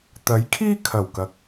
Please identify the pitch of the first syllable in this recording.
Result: rising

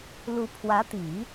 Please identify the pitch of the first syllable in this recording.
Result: rising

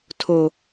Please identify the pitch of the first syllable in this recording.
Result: low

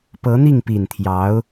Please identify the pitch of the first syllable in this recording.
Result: rising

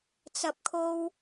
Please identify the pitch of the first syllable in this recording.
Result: low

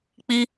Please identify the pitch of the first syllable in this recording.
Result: high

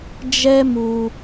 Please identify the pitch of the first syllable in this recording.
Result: high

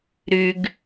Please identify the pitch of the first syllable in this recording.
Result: low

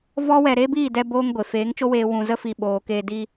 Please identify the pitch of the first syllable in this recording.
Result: high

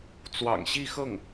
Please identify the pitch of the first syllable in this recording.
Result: low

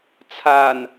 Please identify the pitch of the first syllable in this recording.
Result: low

